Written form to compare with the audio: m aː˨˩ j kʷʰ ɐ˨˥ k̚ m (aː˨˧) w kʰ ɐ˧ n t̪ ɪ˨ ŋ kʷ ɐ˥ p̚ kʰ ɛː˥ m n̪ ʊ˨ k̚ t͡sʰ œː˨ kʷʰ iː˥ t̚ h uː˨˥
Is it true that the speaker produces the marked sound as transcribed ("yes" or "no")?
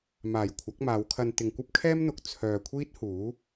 yes